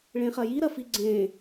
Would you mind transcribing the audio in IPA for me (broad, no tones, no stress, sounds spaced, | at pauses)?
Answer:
ɭ ẽ χ ɐ j i ɾ ɐ f i ɡ͡ǀ ẽ